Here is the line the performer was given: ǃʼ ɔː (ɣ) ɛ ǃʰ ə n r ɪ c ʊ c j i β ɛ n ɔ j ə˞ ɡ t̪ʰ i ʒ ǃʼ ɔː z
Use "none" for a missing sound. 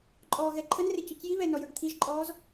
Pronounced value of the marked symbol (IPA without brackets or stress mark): ɣ